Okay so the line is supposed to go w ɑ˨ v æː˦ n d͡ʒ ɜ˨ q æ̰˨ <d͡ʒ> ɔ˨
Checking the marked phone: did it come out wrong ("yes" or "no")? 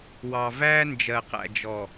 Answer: no